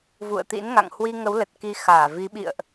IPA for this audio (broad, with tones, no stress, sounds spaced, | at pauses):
v ṵ˧˨ ə̯ t̪ ḭ˧˥ n ŋ a̰˧˨ ŋ h w i˧ ŋ ə˨˦ w l ə˨˩ t̚ k i˧ x aː˧˩ v i˨˦ ɓ ḭ˧˨ ə̯ ʔ